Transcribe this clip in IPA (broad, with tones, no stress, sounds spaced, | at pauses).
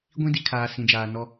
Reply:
ɡʷ ĩ˦ d i˨ kʰ aː˨ s ĩ˨ d͡ʒ aː˨ n ɔ˦